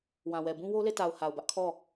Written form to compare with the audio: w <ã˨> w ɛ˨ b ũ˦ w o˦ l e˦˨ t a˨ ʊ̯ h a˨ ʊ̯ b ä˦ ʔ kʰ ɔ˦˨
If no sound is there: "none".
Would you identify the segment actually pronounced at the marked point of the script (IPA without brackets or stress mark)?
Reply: ã˨